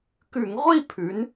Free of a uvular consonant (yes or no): no